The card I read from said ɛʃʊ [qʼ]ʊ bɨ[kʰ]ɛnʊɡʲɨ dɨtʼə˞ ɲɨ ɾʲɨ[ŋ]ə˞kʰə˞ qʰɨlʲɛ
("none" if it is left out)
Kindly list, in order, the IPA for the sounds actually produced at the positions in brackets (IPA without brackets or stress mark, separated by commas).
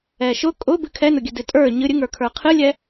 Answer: kʼ, kʰ, ŋ